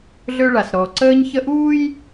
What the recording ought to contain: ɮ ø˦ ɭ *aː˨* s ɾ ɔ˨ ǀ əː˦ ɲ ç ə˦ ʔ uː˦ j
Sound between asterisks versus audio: incorrect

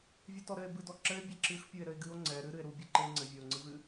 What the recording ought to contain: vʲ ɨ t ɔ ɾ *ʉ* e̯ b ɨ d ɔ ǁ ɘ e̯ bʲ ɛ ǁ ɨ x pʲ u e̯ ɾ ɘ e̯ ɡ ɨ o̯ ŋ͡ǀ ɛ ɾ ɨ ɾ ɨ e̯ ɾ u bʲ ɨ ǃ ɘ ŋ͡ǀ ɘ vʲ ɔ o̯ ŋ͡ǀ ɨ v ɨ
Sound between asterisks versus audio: incorrect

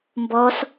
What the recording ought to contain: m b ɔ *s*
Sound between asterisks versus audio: correct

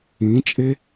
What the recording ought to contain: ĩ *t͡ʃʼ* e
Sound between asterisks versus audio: correct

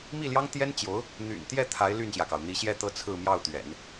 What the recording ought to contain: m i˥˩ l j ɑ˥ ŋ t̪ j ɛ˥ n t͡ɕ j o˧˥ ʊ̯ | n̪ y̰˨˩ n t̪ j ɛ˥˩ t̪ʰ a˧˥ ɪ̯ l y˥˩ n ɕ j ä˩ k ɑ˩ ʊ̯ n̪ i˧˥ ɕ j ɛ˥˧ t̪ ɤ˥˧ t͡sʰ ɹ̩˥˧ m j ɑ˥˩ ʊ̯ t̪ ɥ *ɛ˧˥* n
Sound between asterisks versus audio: incorrect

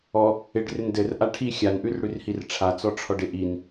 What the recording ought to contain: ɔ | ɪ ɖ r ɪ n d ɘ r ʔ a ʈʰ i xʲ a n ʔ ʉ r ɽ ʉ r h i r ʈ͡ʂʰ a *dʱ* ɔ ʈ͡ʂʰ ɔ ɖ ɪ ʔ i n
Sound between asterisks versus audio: incorrect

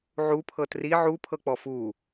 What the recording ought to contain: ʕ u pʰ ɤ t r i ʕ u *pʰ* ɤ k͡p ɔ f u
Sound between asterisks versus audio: correct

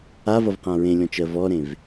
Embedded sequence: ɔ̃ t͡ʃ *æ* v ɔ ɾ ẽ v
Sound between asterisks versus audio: incorrect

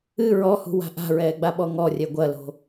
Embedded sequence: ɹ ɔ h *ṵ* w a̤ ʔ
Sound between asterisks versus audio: incorrect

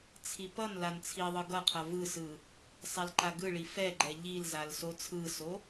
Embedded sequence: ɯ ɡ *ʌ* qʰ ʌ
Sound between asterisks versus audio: correct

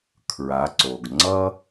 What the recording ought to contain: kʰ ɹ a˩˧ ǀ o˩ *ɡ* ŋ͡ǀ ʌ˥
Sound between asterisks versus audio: correct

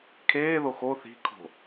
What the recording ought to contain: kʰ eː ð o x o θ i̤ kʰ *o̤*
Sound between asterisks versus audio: correct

